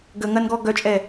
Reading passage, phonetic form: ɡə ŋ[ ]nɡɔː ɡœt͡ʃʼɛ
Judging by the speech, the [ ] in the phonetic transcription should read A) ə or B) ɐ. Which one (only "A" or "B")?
B